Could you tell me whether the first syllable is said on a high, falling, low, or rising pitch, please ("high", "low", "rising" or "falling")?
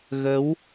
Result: rising